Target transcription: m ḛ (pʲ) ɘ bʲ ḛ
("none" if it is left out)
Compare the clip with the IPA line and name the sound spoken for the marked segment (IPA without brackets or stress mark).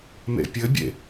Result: pʲ